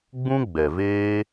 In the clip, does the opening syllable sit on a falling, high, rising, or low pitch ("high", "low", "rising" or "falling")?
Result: high